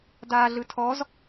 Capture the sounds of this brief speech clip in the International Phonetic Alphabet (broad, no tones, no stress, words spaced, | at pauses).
daːɮɯtʰɔz